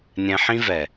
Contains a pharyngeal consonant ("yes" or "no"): yes